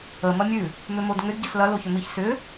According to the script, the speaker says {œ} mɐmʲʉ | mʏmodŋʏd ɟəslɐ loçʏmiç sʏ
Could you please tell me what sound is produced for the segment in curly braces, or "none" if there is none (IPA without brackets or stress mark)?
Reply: ə